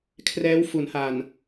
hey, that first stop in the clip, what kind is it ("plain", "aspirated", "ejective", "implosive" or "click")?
aspirated